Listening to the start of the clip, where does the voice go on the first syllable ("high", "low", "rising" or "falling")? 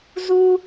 high